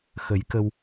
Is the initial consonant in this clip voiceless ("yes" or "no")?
yes